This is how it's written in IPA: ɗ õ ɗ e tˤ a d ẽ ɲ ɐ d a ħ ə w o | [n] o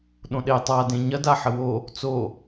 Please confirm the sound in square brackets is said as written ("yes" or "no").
no